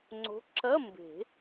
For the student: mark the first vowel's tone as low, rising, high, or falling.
rising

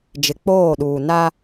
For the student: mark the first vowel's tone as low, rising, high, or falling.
low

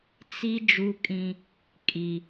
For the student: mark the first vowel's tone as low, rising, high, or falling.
high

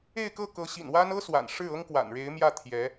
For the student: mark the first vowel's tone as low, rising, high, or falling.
falling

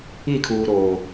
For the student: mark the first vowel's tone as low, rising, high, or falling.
falling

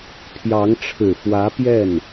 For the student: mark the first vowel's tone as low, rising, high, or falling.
rising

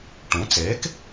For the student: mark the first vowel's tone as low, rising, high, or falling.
rising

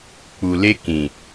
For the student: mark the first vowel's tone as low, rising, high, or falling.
low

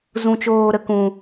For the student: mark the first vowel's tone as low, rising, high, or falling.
low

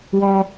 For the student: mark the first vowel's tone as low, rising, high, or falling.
high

